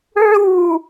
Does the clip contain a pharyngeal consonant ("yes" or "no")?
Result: yes